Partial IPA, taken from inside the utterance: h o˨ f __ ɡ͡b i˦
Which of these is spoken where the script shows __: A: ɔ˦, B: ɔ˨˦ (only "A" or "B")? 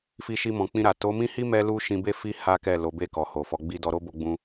B